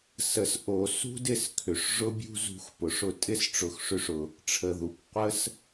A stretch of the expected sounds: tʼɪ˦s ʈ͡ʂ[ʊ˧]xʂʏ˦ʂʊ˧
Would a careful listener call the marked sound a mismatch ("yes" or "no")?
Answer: no